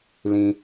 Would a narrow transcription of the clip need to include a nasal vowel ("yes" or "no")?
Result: yes